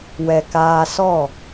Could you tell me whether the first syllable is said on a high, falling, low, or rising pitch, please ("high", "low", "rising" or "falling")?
low